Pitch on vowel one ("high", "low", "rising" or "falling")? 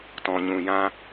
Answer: low